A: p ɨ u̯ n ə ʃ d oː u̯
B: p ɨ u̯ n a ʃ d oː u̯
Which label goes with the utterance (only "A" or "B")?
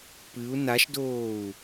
B